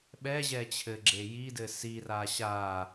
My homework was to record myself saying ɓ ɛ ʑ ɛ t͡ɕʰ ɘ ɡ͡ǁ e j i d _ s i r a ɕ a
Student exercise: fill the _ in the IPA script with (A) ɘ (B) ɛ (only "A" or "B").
A